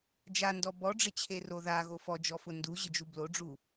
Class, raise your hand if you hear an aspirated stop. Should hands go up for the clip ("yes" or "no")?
yes